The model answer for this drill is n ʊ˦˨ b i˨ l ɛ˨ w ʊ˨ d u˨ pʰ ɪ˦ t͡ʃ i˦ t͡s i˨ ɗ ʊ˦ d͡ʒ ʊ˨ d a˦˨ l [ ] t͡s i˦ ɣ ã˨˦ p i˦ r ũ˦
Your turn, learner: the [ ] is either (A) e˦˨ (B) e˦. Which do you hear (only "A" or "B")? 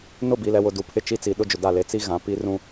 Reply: A